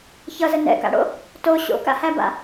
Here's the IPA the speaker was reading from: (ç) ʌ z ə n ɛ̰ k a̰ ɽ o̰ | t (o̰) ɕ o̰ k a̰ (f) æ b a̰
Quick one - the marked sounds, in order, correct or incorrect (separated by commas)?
correct, incorrect, incorrect